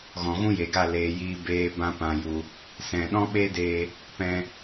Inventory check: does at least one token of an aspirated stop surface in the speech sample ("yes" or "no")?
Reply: no